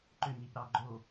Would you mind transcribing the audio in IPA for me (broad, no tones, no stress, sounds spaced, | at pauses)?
ǃ ʏ ɲ i p ɾ ɑ ɡ͡ǃ o